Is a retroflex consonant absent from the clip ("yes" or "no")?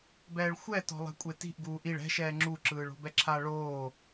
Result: no